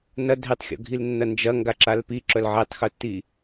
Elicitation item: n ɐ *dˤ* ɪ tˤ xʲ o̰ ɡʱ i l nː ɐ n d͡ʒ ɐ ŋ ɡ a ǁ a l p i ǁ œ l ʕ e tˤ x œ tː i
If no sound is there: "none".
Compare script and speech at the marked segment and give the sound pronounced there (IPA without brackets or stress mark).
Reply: dʱ